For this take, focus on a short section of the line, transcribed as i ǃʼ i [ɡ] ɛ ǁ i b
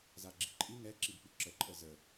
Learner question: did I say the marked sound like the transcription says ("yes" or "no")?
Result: no